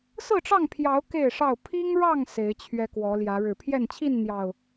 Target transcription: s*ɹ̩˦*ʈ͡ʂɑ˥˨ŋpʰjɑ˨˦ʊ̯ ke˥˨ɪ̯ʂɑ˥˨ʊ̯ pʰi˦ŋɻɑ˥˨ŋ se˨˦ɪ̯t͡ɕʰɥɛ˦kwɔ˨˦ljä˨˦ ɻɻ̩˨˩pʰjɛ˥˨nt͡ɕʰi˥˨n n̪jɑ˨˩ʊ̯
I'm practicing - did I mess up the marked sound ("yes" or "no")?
yes